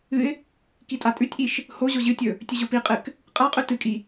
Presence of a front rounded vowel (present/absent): absent